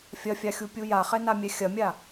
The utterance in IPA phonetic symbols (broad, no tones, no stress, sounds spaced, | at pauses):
fʲ ɐ fʲ a xʲ u pʲ u j a χ ɛ n a mʲ ɛ xʲ ɐ mʲ a